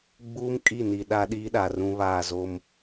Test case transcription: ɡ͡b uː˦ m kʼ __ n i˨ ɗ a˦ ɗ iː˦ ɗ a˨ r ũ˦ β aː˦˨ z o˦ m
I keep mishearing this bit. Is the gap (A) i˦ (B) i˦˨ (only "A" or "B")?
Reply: B